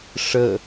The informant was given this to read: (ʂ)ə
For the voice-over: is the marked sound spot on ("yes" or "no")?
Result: yes